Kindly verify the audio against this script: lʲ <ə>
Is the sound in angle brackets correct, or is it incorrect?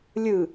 incorrect